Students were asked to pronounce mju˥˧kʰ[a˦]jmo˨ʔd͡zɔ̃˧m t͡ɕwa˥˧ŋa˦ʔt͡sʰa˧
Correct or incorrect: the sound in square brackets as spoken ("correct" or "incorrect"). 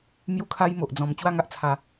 correct